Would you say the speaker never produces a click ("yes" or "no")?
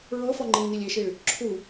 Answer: no